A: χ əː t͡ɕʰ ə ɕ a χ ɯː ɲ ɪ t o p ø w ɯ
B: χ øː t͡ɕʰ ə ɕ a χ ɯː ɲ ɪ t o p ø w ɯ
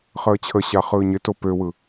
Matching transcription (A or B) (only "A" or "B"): A